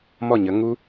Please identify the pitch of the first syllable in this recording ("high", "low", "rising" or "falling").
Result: falling